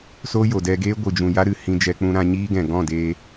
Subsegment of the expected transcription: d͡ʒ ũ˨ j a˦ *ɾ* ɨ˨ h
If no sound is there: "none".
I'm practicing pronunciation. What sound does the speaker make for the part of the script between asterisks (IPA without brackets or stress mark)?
ɾ